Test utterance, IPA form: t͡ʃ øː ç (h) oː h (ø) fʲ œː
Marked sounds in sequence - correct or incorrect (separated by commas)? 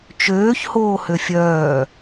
correct, correct